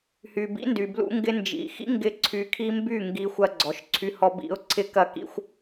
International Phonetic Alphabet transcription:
h y˨ b ḭ˨˦ n d y˨ b l ṵ˧ ŋ ɡ ɪ˧ n d͡ʒ ḭ˨ x ḭ˦ ŋ ɡ ɪ˧ ǀʰ y˧ kʰ i˦ m b y˦˨ ŋ ɡ i˧ xʷ ɐ˧ ɡ͡ǀ ɔ˨ ʃ ǀʰ y˧ h ɔ˧ b ḭ˨˦ ʊ̯ ǀʰ ɪ˦ k ɐ˦ k ḭ˦ xʷ

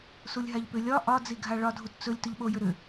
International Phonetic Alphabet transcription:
s u lʲ ɦ a ʎ p ʏ lʲ ɒ ʔ ɒ d͡z i ɡʱ a ɭ ɒ dʱ u t t͡s ɵ lʲ t ɵ ʎ ɓ o j ʏ ɾ ʏ

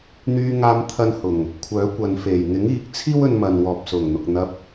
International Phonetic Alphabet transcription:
n̪ yː˧ ŋ aː˧ m t̪ʰ ɐ˧ n h ʊ˨˩ ŋ | kʷʰ œː˨˥ kʷ ɐ˨˧ n f e˨˩ j ŋ ɪ˨˥ ŋ iː˨˥ k̚ t͡sʰ iː˥ w ɵ˧ n m ɐ˨ n w ɔː˨ p̚ s ʊ˨˩ ŋ n̪ ʊ˨ k̚ n̪ ɐ˧ p̚

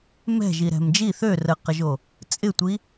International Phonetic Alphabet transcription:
m ɛ̤ ʒ i ɾ ɛ̤ m d͡ʒ i θ ø r ə q ə ʒ o | t͡sʼ ɪ tʷ i

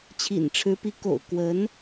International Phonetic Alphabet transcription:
t͡ɕʰ ḭ˨˩ n ʈ͡ʂʰ ɻ̩˧˥ p i˧˥ k o̰˨˩ ʊ̯ k w ə˧˥ n

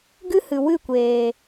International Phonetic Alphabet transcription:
ɡ ɨ˦ h ɨ˨ w ɨ˦˨ kʷ eː˨

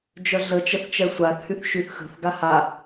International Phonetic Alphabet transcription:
d͡ʒ œ ɮ ə t͡ʃ ə θ t͡ʃ ɛ sʷ a θ h y θ ʃ y θ x ə̤ θ ɡ a h a

